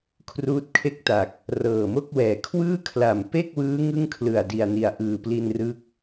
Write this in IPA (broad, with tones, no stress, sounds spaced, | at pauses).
kʰ r uː˦˥ t̚ kʰ e˥˩ k̚ t a˨˩ k̚ | r ɤː˨˩ m o˥˩ k̚ w ɛː˩˦ kʰ w ɯː˥˩ kʰ l a˨˩ m p e˥˩ k̚ w ɯː˦˥ ŋ ɯ˥˩ ŋ kʰ l ɯ˨˩ a̯ d i˨˩ a̯ n i˨˩ a̯ ʔ ɯː˨˩ p l i˧ n r ɯ˦˥ k̚